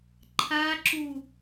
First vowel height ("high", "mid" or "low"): low